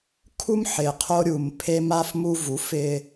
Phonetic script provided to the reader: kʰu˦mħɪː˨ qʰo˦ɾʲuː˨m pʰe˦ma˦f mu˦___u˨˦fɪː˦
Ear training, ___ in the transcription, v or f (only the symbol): v